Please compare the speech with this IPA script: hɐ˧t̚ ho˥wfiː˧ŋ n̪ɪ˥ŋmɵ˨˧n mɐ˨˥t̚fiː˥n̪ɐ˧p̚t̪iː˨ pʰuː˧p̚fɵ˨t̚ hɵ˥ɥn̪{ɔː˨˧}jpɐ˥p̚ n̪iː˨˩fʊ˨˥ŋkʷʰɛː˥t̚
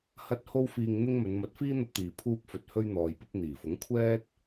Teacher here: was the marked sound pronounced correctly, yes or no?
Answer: no